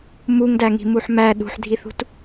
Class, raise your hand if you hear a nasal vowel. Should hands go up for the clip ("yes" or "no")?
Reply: no